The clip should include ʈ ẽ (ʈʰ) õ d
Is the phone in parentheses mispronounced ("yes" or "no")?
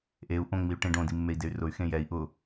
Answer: yes